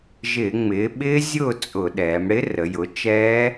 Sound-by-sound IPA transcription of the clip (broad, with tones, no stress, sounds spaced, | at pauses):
ʒ ɪː˧˩˧ ŋ͡m ɪː˩˧ ɓ ɪː˦˥ zʲ ʊː˥˨ t͡sʼ ʊ˧˩˧ ɗ ɛː˩˧ m ɽ ɪ˦˥ r ə˩˧ j ʊ˩˥ t͡ʃ ɛː˦˥